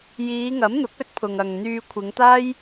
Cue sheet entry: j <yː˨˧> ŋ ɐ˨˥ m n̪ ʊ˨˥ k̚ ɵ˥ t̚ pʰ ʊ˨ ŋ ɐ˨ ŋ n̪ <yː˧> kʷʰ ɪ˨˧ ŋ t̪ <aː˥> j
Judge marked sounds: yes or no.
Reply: no, yes, yes

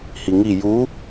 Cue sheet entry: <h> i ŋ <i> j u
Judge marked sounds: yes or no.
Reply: yes, yes

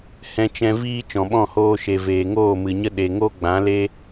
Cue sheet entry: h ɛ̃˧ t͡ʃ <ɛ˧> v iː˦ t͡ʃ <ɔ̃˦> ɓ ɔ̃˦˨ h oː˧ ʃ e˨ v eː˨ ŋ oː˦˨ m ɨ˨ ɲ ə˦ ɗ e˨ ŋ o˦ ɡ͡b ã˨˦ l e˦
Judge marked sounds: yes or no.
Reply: no, no

